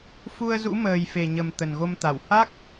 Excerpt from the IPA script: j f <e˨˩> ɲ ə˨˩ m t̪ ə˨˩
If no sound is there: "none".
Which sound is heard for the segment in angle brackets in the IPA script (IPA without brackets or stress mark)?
e˨˩